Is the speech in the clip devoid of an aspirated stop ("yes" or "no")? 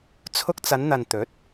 no